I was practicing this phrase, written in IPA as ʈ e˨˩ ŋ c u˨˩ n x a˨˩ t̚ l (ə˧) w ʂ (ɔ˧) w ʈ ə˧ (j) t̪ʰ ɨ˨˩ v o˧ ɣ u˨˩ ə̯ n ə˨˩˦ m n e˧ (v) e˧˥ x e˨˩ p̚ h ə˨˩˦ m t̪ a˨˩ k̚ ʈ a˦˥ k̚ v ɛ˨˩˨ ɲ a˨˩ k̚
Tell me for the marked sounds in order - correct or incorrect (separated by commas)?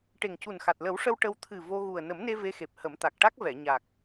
incorrect, incorrect, incorrect, correct